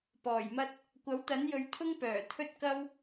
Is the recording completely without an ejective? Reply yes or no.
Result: yes